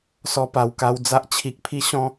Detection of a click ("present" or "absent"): absent